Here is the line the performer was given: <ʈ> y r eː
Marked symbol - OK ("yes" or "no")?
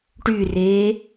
yes